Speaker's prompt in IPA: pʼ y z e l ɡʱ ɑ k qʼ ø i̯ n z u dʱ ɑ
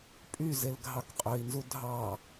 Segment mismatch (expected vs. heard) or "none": none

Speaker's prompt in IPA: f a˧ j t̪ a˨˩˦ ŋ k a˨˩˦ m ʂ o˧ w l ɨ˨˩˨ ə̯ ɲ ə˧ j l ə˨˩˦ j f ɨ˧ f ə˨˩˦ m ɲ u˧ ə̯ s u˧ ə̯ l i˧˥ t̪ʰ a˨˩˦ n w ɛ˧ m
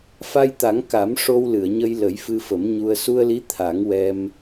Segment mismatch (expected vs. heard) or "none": n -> ŋ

